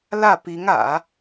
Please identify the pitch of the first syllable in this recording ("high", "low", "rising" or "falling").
falling